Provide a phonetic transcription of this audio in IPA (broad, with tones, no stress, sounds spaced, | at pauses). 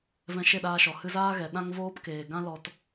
v ɛ̃˧ ʃ e˦˨ ɗ aː˧ ʃ ɔ˨ h ɨ˧ z aː˦ ɣ ɛ˨ ɗ ã˦ ŋ v oː˦ p k eː˨ ɡ ã˦ l ɔ˧ t